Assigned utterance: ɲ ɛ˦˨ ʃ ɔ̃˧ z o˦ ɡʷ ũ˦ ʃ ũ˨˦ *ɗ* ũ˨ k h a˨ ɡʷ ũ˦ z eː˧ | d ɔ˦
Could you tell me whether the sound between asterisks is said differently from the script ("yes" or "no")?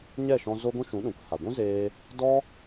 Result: no